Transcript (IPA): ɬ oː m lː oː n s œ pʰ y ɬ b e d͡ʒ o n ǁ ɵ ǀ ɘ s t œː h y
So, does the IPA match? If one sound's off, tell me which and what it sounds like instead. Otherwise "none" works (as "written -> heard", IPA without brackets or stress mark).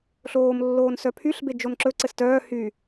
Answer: none